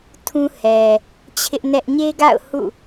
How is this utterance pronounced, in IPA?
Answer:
tʰ ũ˦ h ɛ˨ | t͡ɕʰ ɪ˦ ʔ n ɛ˦ ʔ ɲ e˦ ɡ a̰˦˨ ʊ̯ h ṵ˦˨

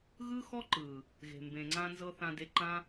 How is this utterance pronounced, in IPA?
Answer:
ɣ ɯ˦ x ɔ˦ ǃ ɯː˨ | ɣ e̤˨ m b ẽ˨ ŋ͡ǀ ã˧ n z ɤ˧ θ ã˧ d e˧ ǃ ã˧

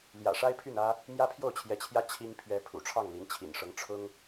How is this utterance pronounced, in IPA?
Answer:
l j ä̰˨˩ ʂ a˥ ɪ̯ pʰ y˥˩ n ä˥ | m j ä˥ pʰ j o˥˩ ʊ̯ t͡ɕʰ j ɛ˧˥ t͡ɕʰ j ä˥ t͡ɕʰ i˥ ŋ pʰ ɥ ɛ˧˥ pʰ ṵ˨˩ ʈ͡ʂʰ ɑ˥˩ ŋ l i˧˥ n t͡ɕʰ ḭ˨˩ n ʂ ɤ˧˥ ŋ ʈ͡ʂʰ ʊ˥ ŋ

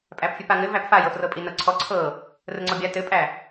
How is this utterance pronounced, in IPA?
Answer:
pʼ æ p fʲ ɯ p a ŋ ɘ v æ p f a j ɤ f r ɤ pʼ i n ɤ ǀʰ ɔ ǀʰ ɤ | r ə ŋ͡ǀ ɔ bʲ a t ɘ pʼ æ

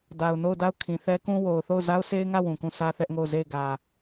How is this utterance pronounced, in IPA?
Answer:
d a˨ ʊ̯ n o˦˨ ʊ̯ d a˦˨ ʊ̯ kʰ ĩ˨ θ ɛ˦ k ũ˦ w o˨ ʊ̯ θ o˦˨ ʊ̯ z a˦ ʊ̯ s e˦ ɪ̯ ŋ ä˦˨ w ũ˨ k ũ˦˨ s ä˦ θ ɛ˦ ʔ ŋ o˦˨ ʊ̯ z e˦˨ ɪ̯ ɡ ä˨

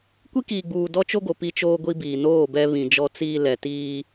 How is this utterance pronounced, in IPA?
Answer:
kʷ i˦ k iː˨ ɡ͡b uː˨ d ɔ˦ t͡ʃ o˦ ɡ o˨ p i˦ t͡ʃ oː˦ ɡʷ i˦ b iː˨ n oː˦˨ b ɛ˦ β ĩ˨ d͡ʒ ɔ˦ t͡s iː˦ l ɛ˨ t iː˦

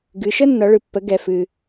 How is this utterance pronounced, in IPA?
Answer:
ɡ ɨ˩˧ ʃ ə˥ nː ʌ˩˧ ɭ ɨ˩ pː ə˩˧ ɡ ɛ˩ f ɨ˩

